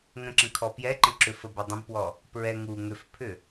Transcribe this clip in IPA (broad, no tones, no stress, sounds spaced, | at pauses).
ŋ ə̃ ǁ ə̃ kʰ ɔ p j ɛ ǃ ə̃ ǁ ʏ f ə b ɛ dˤ ə̃ b p w ɔ | p ɹ ɛ ŋ u ŋ ʏ f pʰ ʏ